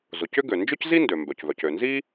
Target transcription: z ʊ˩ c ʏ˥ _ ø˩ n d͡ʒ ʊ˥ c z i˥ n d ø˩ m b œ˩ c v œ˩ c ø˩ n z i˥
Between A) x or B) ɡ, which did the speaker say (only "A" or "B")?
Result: B